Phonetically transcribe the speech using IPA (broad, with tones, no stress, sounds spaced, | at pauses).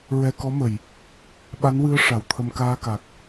ɹ ɛ˧ k ɔ˧˥ m ə˨˩˨ j | ɓ a˧˥ n w ɨ˧˥ ə̯ ʂ a˨˩˨ w t̪ʰ ə˧ m k aː˧ k a˨˩ k̚